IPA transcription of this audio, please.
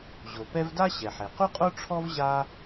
ʑo˩pɛ˦vda˥ ɕɛ˩ħe˩qu˥qʼo˥ ʈ͡ʂʰɔ˥v ʑa˥

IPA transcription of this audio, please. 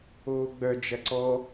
oːɡ͡bœ d͡ʒɐǀɔ

